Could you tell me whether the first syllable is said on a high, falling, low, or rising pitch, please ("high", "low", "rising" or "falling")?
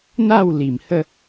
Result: falling